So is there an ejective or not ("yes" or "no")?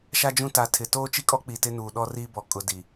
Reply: yes